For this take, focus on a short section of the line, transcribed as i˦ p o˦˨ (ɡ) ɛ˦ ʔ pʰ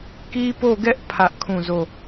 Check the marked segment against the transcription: correct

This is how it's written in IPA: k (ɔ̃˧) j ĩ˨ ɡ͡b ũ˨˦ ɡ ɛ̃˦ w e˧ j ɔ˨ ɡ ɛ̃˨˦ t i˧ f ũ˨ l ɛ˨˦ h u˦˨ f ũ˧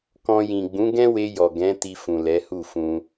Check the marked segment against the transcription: correct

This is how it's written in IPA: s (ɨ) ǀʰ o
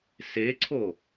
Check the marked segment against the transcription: incorrect: e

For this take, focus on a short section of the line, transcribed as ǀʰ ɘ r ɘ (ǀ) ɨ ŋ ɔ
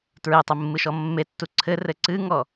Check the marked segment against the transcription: correct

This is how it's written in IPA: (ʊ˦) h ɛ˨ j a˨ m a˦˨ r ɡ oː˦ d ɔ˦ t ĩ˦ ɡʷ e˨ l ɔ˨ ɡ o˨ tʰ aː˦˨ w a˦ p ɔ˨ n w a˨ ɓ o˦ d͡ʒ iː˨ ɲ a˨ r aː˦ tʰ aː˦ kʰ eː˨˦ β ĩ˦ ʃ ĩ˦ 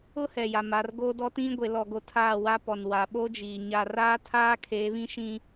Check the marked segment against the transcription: correct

